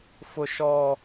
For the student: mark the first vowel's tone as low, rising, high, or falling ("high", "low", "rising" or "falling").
high